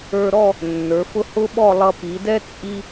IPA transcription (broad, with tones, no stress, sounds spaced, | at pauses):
ə˞˧ ɾ ɔ˥˧ | nː ə˞˩˧ f ʊ˥ h ʊ˥ ɓ ɔ˥˧ lˠ ʌ˧ p i˩˧ d ɛ˥ t͡sʼ i˥